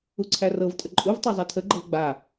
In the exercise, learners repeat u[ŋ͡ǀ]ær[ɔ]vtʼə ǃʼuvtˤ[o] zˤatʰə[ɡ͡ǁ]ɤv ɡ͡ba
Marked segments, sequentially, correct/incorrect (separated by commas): incorrect, incorrect, incorrect, incorrect